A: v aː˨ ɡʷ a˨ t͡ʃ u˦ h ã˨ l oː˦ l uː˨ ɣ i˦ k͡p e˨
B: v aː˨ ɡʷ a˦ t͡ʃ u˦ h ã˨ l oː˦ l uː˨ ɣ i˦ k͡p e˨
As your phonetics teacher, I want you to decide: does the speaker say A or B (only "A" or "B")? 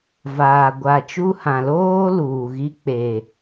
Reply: A